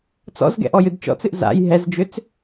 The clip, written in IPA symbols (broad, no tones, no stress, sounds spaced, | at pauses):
t͡s ɔ̰ z ɡ ɛ̰ ʔ ɔ j ɨ d t͡ʃ ɔ̰ t͡s ɨ ʔ z a̰ j ɦ ɛ z d͡ʒ ʏ t͡s